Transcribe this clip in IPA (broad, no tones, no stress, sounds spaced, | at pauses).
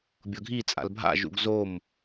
bʲ ɤ ɡʱ i t͡sʼ a̰ l bʱ a̰ ʒ ṵ ɡ z o m